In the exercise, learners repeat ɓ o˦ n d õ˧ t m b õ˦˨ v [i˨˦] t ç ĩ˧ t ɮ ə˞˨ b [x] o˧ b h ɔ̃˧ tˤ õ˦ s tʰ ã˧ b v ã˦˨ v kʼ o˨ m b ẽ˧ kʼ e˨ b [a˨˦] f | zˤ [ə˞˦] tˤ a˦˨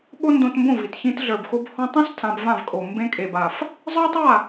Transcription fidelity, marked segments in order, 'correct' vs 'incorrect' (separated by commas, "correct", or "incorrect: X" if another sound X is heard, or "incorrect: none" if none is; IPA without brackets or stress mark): incorrect: i˨, correct, incorrect: a˨, correct